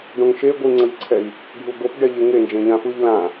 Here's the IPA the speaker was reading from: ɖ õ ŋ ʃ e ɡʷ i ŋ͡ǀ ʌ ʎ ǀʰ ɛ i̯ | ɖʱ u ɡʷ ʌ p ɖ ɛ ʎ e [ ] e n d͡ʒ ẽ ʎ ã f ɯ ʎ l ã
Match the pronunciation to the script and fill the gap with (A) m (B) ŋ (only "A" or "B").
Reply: B